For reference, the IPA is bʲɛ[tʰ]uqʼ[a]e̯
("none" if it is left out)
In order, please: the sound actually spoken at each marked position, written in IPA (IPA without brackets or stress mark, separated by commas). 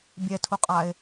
tʰ, a